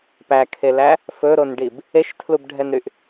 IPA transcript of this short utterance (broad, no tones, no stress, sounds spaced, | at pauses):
p æ kʰ e l æ | f ɵ ɾ o n ɖ i b | e ʃ tʰ l u b ɖʱ ɛ n ɾ y ʔ